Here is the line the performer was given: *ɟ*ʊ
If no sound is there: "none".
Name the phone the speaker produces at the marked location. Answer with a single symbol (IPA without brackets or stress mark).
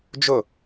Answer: d͡ʒ